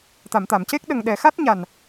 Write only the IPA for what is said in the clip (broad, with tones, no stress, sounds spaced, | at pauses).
t̪ a˨˩˨ m t̪ a˨˩˨ m c e˦˥ k̚ ɗ ə˨˩ ŋ ɗ ɛ˨˩˨ x a˦˥ t̚ ɲ a˨˩ n